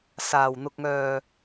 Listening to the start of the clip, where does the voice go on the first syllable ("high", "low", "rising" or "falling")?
low